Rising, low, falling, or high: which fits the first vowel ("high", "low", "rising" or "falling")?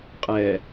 low